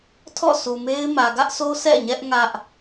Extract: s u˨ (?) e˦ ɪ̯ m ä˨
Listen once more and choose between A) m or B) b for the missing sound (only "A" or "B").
A